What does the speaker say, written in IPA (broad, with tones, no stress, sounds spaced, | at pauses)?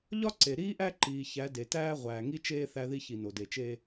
ʎ ɒ˦ ǀ e˨ ɾ iː˦ ʔ æ˦ ǃ iː˨ ç æ˨˦ d e˨ t æː˦ ʁʷ æː˨ ŋ i˦ t͡ʃ eː˦ θ æ˦ ð i˦ ç i˨ n o˨ d e˨ t͡ʃ eː˦